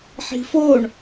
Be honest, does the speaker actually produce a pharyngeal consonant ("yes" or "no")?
yes